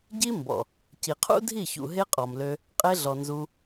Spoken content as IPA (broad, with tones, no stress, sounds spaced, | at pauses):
ɟ i˦ m b ɔ̰˨ | c i˨ qʰ ṵ˦ dʱ i˦˨ ç ṵ˨ ɦ e˦ qʼ ɔ˨ m l ø˧ | qʼ e˧ ɮ ɔ˨ n z u˦